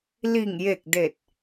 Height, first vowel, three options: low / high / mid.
high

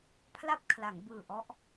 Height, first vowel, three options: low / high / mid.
low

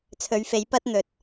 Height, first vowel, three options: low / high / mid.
mid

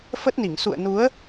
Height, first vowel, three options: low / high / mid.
mid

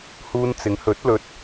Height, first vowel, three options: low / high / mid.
high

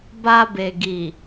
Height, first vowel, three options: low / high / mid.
low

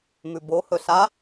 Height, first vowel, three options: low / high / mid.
high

